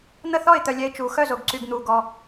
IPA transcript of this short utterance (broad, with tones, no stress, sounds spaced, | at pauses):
n̪ ə˥˧ θ ɔ˥˧ ɪ̯ t̪ œ˧ lʲ ɛ˧ ɪ̯ t͡ʃ u˧ x œ˥˧ z o˧ ɡ ǀ y˧ ɡ n̪ u˧ ɡ ɔ˧